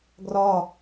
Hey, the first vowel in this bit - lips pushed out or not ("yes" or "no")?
yes